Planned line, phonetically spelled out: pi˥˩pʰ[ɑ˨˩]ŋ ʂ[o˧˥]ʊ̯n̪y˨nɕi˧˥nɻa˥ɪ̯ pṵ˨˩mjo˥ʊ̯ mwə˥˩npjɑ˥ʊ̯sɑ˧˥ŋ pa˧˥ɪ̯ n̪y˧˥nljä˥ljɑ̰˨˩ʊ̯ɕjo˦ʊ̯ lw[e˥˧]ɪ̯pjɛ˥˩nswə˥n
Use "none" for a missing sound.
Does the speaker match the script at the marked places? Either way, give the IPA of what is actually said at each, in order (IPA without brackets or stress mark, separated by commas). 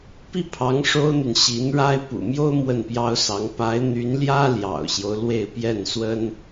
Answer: ɑ˧˥, o˥, e˥˧